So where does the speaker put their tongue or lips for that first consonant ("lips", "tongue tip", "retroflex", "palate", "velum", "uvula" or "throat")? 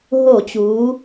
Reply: throat